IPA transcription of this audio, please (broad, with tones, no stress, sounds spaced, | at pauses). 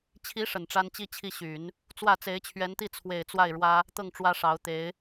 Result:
t͡ɕʰ i˧˥ ʂ ə˨˩ n ʈ͡ʂ a˥ n t͡ɕ i˥ t͡ɕʰ i˥˩ ɕ y˨˩˦ n | t͡s w ä˥˩ t͡s e˧˥ ɪ̯ t͡ɕʰ ɥ ɛ˧˥ n t̪ i˥˩ t͡sʰ w e˨˩ ɪ̯ t͡s w a˥˩ ɪ̯ ɻ w ä˥ | t̪ ɤ˥˩ ŋ ʈ͡ʂ w ä˥ ʂ ɑ˧˥ ʊ̯ t̪ e˧˥ ɪ̯